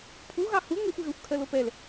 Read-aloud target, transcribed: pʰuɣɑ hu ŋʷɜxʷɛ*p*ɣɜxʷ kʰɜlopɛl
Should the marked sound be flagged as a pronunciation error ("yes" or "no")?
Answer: yes